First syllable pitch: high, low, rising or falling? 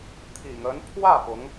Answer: low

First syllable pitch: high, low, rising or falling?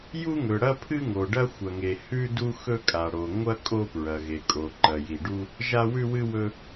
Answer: high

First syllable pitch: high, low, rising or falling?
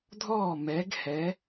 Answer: falling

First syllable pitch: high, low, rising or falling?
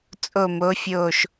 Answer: falling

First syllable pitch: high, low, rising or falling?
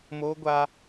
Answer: high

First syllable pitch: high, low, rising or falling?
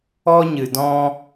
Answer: high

